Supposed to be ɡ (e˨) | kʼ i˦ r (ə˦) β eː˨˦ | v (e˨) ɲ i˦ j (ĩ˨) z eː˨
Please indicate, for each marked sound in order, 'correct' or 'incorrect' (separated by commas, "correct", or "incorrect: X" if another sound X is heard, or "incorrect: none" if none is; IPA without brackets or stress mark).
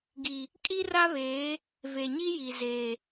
incorrect: i˨, incorrect: a˦, correct, incorrect: i˨